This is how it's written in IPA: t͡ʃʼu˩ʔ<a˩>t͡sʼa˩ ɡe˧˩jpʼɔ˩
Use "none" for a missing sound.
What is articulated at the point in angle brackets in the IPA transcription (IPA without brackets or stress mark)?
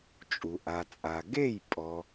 a˩